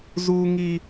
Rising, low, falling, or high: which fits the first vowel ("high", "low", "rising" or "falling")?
high